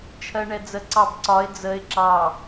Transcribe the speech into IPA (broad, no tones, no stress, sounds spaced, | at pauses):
t͡ʃʰ ɜ ɳ ɛ d͡z ə ǀ ɑ b ǀ ɒ ɪ̯ d͡z ə ɪ̯ ǁ ɑ